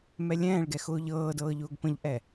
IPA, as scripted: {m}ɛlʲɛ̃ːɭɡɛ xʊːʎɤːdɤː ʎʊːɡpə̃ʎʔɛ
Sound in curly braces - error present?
no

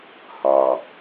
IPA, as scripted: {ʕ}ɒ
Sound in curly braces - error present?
yes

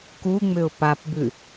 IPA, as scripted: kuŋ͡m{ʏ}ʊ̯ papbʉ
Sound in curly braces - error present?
no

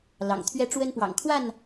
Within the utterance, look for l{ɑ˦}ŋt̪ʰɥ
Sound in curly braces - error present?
yes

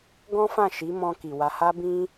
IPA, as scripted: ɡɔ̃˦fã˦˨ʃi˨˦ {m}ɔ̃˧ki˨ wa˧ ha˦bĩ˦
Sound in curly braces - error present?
no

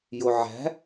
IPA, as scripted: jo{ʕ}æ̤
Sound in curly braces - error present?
no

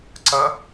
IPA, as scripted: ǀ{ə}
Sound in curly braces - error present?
no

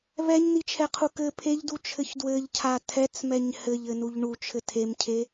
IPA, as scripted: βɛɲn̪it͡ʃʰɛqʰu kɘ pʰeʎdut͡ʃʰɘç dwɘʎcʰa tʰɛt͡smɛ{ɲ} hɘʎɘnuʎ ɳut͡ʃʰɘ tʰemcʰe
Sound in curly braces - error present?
no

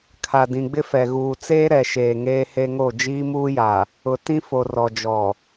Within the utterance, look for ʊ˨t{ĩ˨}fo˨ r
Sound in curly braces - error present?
yes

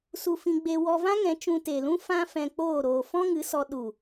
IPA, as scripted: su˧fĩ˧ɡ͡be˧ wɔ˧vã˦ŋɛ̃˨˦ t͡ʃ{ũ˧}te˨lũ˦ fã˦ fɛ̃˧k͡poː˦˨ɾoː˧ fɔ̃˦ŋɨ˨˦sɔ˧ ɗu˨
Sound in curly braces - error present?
no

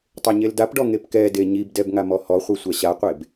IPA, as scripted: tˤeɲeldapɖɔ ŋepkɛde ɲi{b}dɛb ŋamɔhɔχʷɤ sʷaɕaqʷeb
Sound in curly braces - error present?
no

